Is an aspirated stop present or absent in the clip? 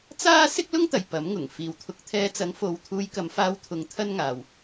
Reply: present